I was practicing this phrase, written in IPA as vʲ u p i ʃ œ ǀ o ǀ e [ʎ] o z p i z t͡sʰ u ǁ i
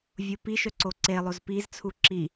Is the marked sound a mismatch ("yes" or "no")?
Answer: yes